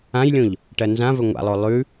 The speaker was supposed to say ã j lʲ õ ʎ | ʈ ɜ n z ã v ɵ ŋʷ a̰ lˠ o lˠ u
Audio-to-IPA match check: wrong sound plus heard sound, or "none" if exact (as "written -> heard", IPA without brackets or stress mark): u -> ʉ